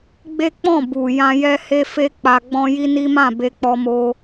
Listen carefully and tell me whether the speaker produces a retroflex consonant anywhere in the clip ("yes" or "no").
no